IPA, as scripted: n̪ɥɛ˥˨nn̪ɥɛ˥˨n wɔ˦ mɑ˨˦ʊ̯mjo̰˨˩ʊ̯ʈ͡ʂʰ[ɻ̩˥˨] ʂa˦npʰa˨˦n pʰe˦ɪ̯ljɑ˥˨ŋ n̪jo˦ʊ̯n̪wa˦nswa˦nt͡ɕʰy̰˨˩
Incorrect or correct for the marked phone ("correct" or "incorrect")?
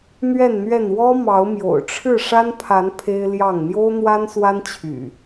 correct